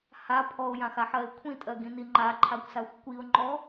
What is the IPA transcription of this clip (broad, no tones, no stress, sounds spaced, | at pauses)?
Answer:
h a pʰ ɔ ʊ̯ j ã x a ħ ɜ ɪ̯ kʷʰ ĩ tʼ ɜ ɡ ĩ n i ŋ͡ǃ a ǃʰ a kʷ s a xʷ kʷ i ʊ̯ ŋ͡ǃ ɔ